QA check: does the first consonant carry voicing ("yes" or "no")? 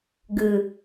yes